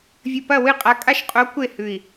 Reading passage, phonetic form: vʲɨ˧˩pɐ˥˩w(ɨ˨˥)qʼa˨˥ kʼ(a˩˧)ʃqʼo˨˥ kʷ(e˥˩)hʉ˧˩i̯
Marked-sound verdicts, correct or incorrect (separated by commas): incorrect, incorrect, correct